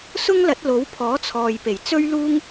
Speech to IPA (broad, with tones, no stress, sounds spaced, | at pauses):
s ʊ˥ ŋ l ɐ˨˥ t̚ l o˨˥ w pʰ ɔː˨˥ t͡sʰ ɔː˨ j p e˨˩ j t͡s ɵ˥ ɥ l uː˥ ŋ